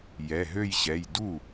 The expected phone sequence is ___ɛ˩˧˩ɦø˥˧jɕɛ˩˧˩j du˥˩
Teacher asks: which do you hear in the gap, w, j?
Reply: j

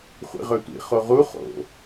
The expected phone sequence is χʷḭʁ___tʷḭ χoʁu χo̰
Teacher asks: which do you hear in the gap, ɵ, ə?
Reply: ɵ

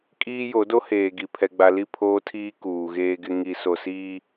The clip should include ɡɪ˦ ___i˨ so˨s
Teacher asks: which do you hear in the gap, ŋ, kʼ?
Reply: ŋ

